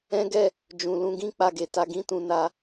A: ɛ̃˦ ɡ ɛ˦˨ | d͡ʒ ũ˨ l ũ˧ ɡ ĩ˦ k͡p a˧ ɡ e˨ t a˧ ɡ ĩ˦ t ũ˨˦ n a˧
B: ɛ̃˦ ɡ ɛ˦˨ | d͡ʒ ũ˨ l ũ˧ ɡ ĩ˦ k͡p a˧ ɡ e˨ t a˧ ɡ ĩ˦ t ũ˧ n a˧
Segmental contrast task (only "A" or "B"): B